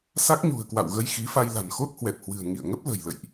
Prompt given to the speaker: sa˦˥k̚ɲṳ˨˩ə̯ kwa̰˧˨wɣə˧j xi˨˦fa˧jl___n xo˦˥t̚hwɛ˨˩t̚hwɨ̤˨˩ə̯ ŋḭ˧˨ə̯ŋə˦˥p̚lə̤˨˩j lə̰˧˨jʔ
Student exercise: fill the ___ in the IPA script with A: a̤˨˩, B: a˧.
A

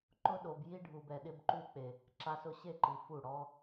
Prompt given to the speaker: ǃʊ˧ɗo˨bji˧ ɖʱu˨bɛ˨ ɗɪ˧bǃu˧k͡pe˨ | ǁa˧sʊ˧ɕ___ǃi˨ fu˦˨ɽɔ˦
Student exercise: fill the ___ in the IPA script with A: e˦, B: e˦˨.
B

